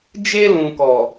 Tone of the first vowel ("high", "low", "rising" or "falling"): high